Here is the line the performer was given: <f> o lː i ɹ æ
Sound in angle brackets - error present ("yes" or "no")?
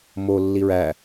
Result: yes